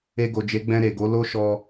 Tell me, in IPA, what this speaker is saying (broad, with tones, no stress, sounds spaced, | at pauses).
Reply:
e˧ ɡ o˨ d͡ʒ e˨˦ ɡ͡b ɛ̃˧ ɾ e˨ ɡ o˨˦ l o˦ ʃ ɔ˧